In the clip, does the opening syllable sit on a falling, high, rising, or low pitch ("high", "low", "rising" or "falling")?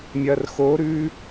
low